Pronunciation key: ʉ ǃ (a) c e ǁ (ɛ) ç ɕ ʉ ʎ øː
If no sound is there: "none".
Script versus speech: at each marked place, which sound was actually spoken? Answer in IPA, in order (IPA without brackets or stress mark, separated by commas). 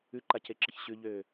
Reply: a, ə